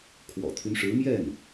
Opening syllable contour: low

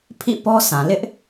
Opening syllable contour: falling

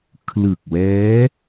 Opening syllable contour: low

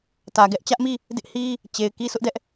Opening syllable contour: low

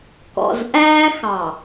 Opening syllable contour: low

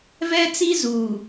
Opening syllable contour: high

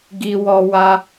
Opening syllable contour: high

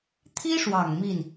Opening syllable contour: high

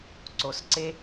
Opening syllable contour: low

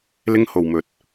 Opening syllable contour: high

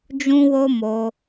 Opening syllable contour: high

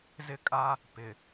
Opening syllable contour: high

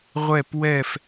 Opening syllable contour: falling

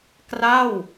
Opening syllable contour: falling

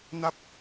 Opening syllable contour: falling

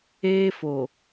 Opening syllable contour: high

